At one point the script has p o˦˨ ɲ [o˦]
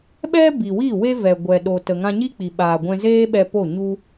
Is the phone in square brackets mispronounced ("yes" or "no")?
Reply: yes